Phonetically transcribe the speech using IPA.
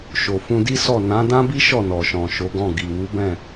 ʃo˨fũ˧di˦sɔ˦˨ nã˨˦dã˦bi˦ ʃɔ˦˨nɔ˨ʃɔ̃˨ ʃo˨˦ɡɔ̃˦˨ ɡi˨ wu˨˦bɛ̃˦˨

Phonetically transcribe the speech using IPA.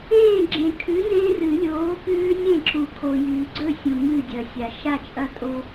ẽː˥˩ ɡ͡ǁẽ˨kʰʉ˨˥ nẽː˦rɨ˨˩˦lʲoː˨˥pʉː˦ nʲẽ˥˩ǁu˨kʰo˨ jʉː˨ɡ͡ǀɵ˥˩sʲũ˨ ŋɨː˥˩dʲɐ˨sʲa˨ ʃa˥˩t͡ʃʼɐ˦ tʼo˦

